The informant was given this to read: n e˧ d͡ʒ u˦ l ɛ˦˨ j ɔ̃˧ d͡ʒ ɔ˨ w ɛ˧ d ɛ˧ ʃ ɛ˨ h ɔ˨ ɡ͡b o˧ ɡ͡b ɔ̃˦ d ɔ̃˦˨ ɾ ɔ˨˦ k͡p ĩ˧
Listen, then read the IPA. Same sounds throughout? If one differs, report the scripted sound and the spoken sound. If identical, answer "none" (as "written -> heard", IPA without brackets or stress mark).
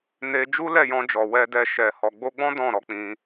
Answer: none